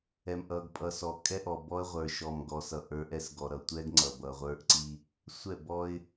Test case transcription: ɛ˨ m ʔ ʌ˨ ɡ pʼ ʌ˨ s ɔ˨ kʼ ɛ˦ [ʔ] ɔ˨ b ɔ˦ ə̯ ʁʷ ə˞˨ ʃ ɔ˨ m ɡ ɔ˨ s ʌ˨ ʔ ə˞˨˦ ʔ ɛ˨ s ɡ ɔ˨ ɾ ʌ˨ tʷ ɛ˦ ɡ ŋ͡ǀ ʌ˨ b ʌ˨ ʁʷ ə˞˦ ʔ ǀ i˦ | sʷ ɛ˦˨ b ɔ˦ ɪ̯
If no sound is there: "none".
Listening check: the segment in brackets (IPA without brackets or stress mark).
ʔ